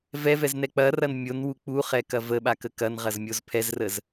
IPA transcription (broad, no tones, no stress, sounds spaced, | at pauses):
v ɛ v ɛ z n ɛ k͡p ɐ r ɐ n mʲ o n w u k͡p u χ ɛ k ɐ v ə ɓ a k ə k ɐ n ʁ ɐ z mʲ o z pʰ ɛ z r ə z